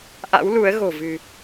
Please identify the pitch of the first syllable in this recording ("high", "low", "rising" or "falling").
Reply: rising